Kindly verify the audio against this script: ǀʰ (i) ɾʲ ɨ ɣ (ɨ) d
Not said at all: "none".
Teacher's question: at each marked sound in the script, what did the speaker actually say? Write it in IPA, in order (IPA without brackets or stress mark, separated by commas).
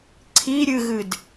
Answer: i, ɨ